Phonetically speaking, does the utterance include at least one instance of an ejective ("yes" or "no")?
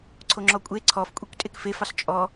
yes